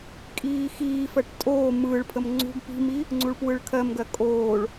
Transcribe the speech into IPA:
kʼ iː x iː f ɜ ʈ tʼ oː m ɯː ɭ pʰ ə m ŋ͡ǀ ṳ ɡ p i̤ m i | ŋ͡ǀ u ɭ p w ɯ ɭ kʰ ɜ m ɡ ɜ kʼ oː ɭ

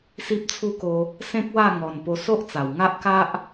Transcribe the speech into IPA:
s i˦ p̚ t͡sʰ u˦ k o˧ | s ẽ˦ k̚ w a˥˧ ŋ ɔ˨˩ n p o˧ s o˦ ʔ t͡s a˨˩ w ŋ a˦ ʔ k a˦ ʔ

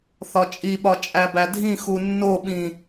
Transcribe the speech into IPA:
θ ɒ t͡ʃʼ i ɓ ɒ t͡ʃʼ æ b æ dʱ ĩ x u nː o ɓ ĩ

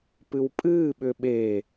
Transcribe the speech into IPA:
p ɨ w pʼ ɨː ɓ ʏ ɓ e

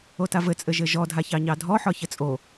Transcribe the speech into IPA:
o t a v ɘ t͡sʼ ɘ ʒ ɘ ʒ ɔ dʱ a ç ɑ ɲ ɑ dʱ ɔ ħ ɒ ç ɘ t͡sʼ o

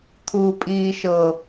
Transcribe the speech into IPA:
t̪ʰ uː pʼ iː ʃ ɤ

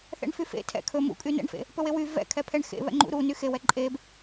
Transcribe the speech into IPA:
θ ɛ̰ ɳ f y f ḛ tʰ ɛ̰ kʰ ɵ m ṵ kʼ y n ɛ̰ ɳ f ḛ | p ɵ w e w y v ɛ̰ kʰ ɛ pʰ ɛ ɳ x ḛ β ɛ̰ ŋ͡ǃ ṵ ɾ u n y x e w ɛ ǃʼ e b

